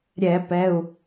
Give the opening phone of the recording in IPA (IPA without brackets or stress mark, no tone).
ɾʲ